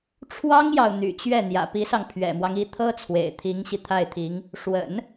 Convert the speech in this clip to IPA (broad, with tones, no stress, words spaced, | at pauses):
ʈ͡ʂʰwɑ˥ŋjɑ˨ʊ̯ n̪y̰˨˩t͡ɕɥɛ˥˩ n̪jä̰˨˩pi˧˥sɑ˧ŋ pʰɥɛ̰˨˩mwɑ˦ŋ i˧˥t̪ʰɤ˥t͡sʰwḛ˨˩ɪ̯ t̪ʰi˧˥ŋɕi˧ t̪ʰa˥˩ɪ̯t̪ʰi˧˥ŋ | ʂwə̰˨˩˦n